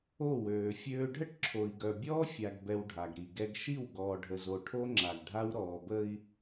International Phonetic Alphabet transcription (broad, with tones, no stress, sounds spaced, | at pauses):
o˦˨ w øː˨ fʲ øː˦ ɖʱ ə˦ ʈ ǁʰ o˨ i̯ ɡ œ˨ bʲ ɔː˦ fʲ a˨ ɡ b ɛ˨ w ɖʱ a˨ ɡ ɾ i˨ ɡ ɛ˦ ɡ ʃ i˦˨ w ɡ ɔː˨ ɖʱ ə˨ z o˨ ʈʰ o˦ ŋ͡ǁ a˨ ɡ ɖʱ a˦ w ɾ ɔː˨ b ə˦ i̯